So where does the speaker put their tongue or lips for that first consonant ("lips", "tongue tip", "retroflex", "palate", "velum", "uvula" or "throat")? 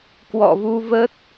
velum